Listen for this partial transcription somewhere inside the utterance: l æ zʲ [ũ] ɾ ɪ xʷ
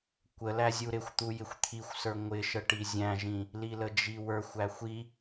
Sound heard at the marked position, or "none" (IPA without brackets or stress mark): u